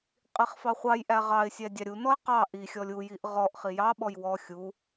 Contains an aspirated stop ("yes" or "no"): no